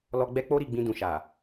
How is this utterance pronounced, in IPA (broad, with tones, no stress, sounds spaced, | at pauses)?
l ɔ˧ ɡ͡b ɛ˦ k͡p o˦ ɾ i˦˨ ɡ͡b ĩ˧ d ũ˨ ʃ a˨